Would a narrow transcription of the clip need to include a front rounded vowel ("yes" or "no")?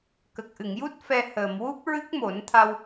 no